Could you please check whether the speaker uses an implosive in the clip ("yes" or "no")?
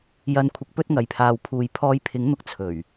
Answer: no